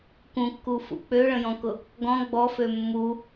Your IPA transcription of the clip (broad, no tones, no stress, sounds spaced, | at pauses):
k ũ kː u f ṵ k͡p ø ɭ ə̃ j ɔ̃ k ʊ | ɡ ɔ̃ ɡ͡b ɔ f ø mː u